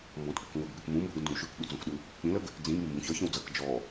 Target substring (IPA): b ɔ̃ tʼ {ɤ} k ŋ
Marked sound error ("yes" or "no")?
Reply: yes